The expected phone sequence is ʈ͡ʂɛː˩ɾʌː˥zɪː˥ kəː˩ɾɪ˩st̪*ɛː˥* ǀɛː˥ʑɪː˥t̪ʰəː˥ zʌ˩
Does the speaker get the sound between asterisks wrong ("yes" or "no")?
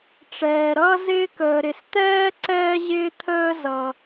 no